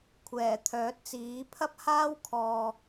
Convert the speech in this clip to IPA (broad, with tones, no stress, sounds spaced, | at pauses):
kʷʰ ɛː˨˩ t̪ʰ œː˨˥ t̚ t͡s iː˨˥ pʰ ɐ˥ p̚ h aː˥ w kʰ ɔː˨